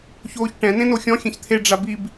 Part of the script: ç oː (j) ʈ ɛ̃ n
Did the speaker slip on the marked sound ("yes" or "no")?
yes